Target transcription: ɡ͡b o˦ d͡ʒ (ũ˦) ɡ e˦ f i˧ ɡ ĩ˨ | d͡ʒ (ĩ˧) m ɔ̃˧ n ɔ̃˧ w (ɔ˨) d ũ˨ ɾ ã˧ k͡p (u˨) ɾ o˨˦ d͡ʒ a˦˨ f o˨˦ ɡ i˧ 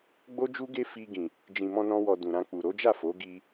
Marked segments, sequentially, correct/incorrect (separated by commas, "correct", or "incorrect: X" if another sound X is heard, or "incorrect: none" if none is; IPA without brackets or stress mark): incorrect: u˦, incorrect: ĩ˨, correct, correct